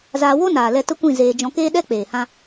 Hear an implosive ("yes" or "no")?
yes